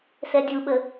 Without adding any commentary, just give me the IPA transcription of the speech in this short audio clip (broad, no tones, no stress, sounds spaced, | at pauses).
s ɛ dʲ u ɓ ə